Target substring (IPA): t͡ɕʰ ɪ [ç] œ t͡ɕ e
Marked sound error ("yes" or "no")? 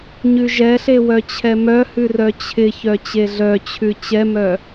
no